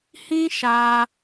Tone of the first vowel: high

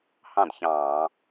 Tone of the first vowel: falling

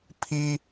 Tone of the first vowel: high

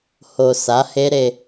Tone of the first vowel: low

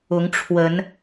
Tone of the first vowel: rising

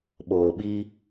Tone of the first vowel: low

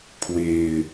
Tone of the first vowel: low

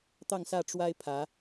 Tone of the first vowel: falling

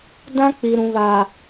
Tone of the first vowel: high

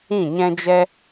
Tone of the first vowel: falling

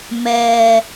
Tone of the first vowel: low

